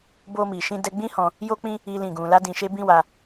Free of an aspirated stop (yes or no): yes